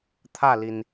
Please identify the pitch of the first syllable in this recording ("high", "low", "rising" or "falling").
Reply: falling